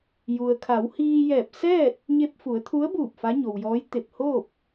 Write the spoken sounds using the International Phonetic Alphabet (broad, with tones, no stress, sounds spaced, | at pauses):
j u˩ ə̯ kʰ a˩˧ w h iː˧ j ɛː˧˩ p̚ s ɛː˥˨ t̚ | ɲ e˧ p̚ f u˩˧ ə̯ t̪ʰ u˧˥ ə̯ b uː˧˩ p̚ f a˧˥ ɲ o˩ w j ɔː˧˥ j t̪ e˧˩ p̚ h oː˥˨ p̚